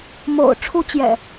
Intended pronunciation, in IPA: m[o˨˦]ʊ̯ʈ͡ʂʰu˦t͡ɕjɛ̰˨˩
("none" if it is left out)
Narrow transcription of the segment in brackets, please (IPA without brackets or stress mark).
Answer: o̰˨˩